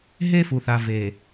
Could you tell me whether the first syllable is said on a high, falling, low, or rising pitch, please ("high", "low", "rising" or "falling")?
high